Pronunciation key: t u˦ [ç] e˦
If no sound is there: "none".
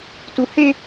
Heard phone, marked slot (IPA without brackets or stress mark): h